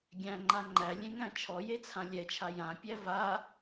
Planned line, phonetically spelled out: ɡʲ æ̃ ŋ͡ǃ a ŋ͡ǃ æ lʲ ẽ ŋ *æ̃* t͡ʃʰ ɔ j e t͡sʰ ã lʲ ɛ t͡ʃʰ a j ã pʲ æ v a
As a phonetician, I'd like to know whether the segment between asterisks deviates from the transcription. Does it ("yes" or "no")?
no